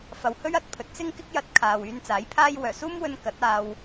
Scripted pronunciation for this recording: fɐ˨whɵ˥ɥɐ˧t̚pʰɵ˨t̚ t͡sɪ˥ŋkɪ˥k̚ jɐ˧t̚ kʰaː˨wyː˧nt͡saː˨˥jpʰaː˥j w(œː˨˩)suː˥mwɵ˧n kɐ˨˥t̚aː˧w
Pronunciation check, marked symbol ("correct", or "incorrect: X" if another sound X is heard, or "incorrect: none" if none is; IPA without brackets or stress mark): correct